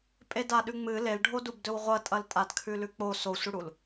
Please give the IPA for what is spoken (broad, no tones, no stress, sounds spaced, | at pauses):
pʼ e d a ɗ ʉ ŋ͡m ɨ l e l ɖʱ o d u b d ɵ w ʁʷ ɐ tʼ ɐ l tʼ a d kʰ ʉ l ʉ k͡p o s o sʷ ɨ ɽ u l